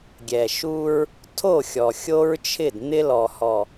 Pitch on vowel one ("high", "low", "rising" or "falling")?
low